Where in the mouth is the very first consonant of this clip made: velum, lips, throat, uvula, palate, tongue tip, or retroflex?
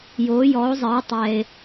palate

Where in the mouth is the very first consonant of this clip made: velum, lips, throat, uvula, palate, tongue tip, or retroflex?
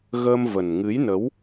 velum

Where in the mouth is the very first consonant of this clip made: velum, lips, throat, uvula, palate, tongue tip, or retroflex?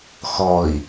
velum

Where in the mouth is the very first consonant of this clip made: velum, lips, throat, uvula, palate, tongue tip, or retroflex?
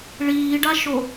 retroflex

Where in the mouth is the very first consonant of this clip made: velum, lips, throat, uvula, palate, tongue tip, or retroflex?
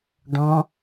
retroflex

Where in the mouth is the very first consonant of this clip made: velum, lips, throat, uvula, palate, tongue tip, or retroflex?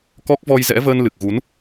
velum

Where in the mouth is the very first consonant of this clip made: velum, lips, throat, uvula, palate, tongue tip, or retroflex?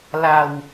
tongue tip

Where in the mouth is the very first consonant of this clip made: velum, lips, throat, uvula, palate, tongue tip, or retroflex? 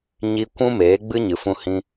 palate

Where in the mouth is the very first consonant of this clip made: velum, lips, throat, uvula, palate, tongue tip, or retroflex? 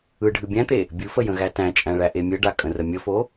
retroflex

